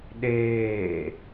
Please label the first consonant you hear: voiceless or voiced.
voiced